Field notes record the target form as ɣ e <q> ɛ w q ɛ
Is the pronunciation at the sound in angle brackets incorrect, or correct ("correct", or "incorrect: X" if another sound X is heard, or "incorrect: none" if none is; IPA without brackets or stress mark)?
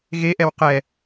incorrect: ʔ